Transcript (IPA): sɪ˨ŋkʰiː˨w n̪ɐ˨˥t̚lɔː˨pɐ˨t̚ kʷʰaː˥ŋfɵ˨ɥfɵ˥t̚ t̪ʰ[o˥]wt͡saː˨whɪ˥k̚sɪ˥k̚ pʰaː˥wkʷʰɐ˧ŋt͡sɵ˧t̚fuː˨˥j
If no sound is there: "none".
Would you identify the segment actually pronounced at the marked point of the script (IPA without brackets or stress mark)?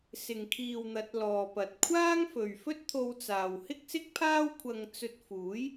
o˧